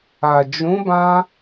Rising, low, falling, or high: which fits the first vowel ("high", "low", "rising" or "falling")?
low